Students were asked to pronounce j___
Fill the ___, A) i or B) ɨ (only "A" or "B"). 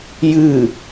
B